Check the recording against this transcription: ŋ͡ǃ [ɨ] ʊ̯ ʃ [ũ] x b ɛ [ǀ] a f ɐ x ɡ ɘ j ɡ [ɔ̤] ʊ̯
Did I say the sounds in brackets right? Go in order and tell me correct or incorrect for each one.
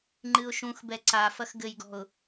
correct, correct, correct, correct

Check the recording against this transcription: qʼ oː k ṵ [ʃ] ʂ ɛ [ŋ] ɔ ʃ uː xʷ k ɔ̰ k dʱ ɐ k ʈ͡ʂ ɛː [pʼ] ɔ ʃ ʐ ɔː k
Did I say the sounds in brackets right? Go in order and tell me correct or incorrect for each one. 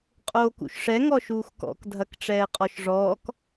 correct, correct, incorrect: qʼ

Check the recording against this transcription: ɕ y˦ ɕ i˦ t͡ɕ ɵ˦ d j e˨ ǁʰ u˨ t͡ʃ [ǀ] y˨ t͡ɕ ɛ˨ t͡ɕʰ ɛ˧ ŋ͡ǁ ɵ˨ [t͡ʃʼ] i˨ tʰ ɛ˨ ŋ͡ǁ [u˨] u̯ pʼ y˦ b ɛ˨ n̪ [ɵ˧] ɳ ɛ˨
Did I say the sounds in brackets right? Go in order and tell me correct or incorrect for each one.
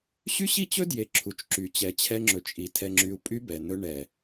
incorrect: ǁ, correct, incorrect: y˨, correct

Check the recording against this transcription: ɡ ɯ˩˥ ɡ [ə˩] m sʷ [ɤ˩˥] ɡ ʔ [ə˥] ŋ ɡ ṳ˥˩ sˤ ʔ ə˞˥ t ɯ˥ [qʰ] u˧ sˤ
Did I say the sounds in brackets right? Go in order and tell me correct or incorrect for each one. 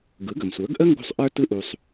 correct, incorrect: ə˞˩˥, correct, incorrect: ʔ

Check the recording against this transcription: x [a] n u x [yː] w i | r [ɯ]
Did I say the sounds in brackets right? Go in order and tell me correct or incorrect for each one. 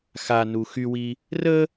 correct, incorrect: y, incorrect: ə

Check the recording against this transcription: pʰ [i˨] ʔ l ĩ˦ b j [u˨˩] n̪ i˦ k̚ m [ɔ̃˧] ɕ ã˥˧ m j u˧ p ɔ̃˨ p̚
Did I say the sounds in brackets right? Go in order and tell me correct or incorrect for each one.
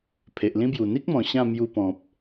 incorrect: e˨, correct, incorrect: ɔ̃˨˩

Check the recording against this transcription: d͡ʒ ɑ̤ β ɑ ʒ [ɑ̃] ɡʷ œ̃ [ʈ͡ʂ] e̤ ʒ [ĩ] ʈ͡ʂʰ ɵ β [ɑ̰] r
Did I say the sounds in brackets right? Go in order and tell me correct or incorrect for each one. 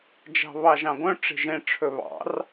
correct, correct, incorrect: ẽ, correct

